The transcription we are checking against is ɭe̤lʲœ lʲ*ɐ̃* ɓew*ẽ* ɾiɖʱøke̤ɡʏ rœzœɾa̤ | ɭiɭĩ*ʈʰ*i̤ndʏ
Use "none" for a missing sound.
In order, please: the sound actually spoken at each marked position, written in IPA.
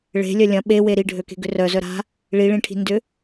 ɐ̃, e, ʈʰ

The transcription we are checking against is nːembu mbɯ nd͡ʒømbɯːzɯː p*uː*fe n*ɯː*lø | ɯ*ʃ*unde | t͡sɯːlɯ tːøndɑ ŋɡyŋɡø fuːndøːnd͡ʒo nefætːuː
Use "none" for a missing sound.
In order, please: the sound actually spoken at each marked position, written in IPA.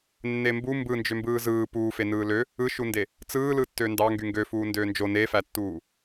uː, ɯː, ʃ

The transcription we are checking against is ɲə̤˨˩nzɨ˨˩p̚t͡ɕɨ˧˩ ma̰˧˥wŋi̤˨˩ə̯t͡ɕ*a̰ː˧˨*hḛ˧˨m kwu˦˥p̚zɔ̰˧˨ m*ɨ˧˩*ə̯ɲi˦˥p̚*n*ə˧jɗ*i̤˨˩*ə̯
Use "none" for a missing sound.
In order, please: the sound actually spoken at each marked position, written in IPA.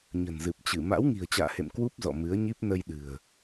a̰ː˧˨, ɨ˨˦, n, ɨ̤˨˩

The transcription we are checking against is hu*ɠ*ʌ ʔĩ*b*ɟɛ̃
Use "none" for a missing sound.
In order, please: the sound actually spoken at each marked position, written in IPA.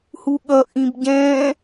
ɠ, b

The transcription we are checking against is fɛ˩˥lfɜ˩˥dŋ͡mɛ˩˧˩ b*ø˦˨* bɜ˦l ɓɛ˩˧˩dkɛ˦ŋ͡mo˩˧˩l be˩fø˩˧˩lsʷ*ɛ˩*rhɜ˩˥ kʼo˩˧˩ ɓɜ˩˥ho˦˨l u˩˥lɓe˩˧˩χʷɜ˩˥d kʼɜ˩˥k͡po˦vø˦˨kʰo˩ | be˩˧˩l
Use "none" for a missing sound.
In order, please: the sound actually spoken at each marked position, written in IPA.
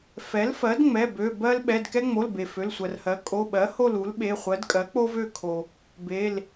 ø˩˧˩, ɜ˩

